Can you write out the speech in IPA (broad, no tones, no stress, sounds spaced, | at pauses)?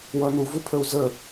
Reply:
w ʌ n u v u pʰ ə u̯ z ə